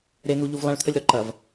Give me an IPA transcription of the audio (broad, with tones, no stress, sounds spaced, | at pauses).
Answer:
ɾ e˨ n̪ u˨ ʎ u˨ v lˠ ã˨ ɭ t̪ʰ ə˨ lʲ ɾ ɔ˨ ǃ ɐ˨ v